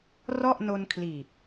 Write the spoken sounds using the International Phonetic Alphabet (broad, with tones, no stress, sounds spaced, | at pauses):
r ɔ˥˩ ʔ n o˧ n kʰ l iː˨˩ p̚